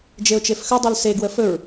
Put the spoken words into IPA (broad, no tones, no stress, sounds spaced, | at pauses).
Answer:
d͡ʒ e ʊ̯ t͡ʃ e f x ɵ dˤ u l s e ɡ w ə f ɵ ɹ